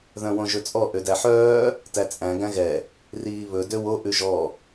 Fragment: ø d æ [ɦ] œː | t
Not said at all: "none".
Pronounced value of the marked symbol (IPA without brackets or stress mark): ħ